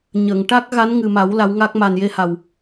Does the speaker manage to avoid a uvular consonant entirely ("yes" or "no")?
yes